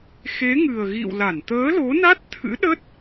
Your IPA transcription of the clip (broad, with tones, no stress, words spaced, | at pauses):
xe˨˦ ŋɨ˨˩ə̯ɣḭ˧˨wla˧˩n t̪əː˨˦lo˨˦na˦˥t̚t̪ʰɨ̰˧˥ ɗə˦˥t̚